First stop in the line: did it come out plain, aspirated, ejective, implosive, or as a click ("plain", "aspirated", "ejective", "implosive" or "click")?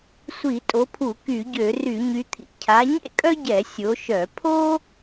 ejective